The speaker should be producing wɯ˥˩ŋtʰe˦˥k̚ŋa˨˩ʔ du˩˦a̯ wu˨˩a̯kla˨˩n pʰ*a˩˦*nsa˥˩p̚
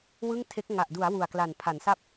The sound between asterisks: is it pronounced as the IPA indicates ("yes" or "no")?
yes